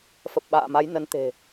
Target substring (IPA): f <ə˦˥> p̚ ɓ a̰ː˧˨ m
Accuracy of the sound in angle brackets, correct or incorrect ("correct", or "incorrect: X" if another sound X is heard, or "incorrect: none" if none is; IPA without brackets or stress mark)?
incorrect: ə˨˩